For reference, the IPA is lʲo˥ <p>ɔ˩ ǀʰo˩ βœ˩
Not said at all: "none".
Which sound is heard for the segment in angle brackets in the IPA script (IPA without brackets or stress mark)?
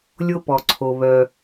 p